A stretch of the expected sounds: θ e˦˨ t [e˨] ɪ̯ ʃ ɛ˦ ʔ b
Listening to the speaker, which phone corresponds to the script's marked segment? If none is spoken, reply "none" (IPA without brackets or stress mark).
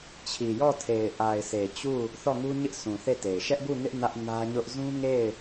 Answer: e˨